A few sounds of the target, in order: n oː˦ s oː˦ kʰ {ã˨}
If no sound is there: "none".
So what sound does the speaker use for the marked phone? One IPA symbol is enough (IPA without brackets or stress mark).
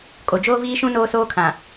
ã˨